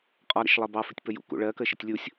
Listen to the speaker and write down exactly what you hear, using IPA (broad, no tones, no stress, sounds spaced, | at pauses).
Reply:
qʼ ɒ ɾ ə̰ ʃ lˠ ɜ b ɑ f ɪ tʲ p ə j ṵ k ṵ ɭ ɜ k ə ʃ ɪ tʲ lʲ u sʲ